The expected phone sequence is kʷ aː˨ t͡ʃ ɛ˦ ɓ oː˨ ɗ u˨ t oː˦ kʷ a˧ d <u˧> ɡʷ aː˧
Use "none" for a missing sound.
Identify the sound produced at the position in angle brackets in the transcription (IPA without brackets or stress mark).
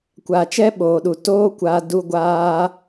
u˧